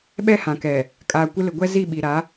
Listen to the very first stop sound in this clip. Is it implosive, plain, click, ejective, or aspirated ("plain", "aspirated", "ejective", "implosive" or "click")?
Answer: implosive